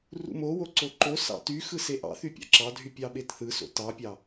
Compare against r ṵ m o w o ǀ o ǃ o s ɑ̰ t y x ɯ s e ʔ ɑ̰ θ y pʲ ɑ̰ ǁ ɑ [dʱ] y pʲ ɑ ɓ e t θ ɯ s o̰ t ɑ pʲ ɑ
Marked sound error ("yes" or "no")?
no